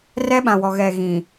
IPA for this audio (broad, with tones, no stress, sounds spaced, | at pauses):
r ɛ˦ ɓ ã˨ w ɔ˨ ɣ ɛ˨ ɣ ĩ˨